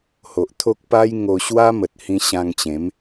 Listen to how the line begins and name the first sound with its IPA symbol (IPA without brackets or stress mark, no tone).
h